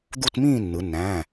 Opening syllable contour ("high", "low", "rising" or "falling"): falling